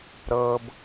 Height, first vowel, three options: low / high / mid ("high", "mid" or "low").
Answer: mid